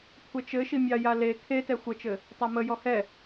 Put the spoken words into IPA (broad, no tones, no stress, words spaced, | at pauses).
kʷʰɛt͡ʃɘ ʃimʲɑja le kʰetɛ xʷət͡ʃɘ | tˤamə jɔhɛ